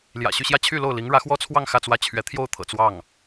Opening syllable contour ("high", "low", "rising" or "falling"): low